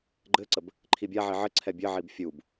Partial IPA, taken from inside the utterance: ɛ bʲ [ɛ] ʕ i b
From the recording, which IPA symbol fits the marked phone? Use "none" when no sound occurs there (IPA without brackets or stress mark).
ɘ